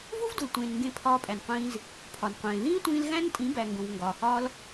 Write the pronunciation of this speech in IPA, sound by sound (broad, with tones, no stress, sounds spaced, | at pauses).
v u˦ v d u˨ l tʷ ẽː˨ n ŋ ɡ ẽ˧ pʰ ɒː˧ pʼ æ˨ n qʷ ĩː˧ z | pʰ ɒ˨ n qʷ ẽː˨ ð ĩː˦ tʷ ĩː˧ l ɣ æ̃˦ n tʼ ĩ˨˦ b æ˨ ŋ ɡ õ˨ v ŋ ɡ ɒː˨ h ɒː˦ l